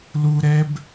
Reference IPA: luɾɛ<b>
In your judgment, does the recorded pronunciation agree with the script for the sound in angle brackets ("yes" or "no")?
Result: yes